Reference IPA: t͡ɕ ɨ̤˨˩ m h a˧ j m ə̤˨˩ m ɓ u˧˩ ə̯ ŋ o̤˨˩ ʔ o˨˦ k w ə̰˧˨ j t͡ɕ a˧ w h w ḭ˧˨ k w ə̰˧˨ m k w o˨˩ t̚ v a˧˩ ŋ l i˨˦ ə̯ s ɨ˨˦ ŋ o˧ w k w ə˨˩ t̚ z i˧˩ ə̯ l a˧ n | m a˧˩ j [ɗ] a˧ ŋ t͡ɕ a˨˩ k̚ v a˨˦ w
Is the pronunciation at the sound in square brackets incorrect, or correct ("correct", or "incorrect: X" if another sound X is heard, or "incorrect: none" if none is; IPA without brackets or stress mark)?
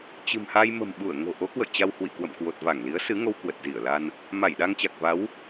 correct